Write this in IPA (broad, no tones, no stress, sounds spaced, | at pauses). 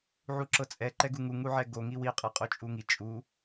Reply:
ʕ u ǁ ɤ t͡sʼ ɛ ǃ ɛ ɡ u ŋ u ŋ u ʕ ɛ ɡ o ŋ i w i qʼ ɤ qʼ o t͡ʃʼ u ŋ i t͡ʃʼ u